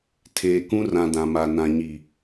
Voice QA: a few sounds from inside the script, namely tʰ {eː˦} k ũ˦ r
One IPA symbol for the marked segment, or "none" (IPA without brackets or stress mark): eː˨